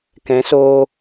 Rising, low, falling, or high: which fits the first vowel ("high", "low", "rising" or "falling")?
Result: rising